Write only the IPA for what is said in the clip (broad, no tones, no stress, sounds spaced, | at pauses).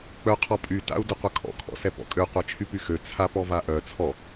k͡p œ qʰ ɔ pʼ y t a̰ u̯ d ə qʷ ə kʰ ɔ̰ kʰ ɔ̰ s ɛ p ɔ̰ kʼ ø qʷ a t͡ʃʰ y p y x ø t͡sʰ a p ɔ v a ʔ œ t͡sʰ ɔ